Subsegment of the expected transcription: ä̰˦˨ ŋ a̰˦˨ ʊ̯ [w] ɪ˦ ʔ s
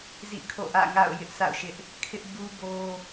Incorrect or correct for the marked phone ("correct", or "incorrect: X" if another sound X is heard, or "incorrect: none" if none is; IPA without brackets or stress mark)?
incorrect: j